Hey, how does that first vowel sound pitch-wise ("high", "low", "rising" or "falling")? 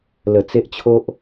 low